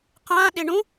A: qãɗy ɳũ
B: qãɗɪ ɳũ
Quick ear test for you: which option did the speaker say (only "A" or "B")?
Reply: B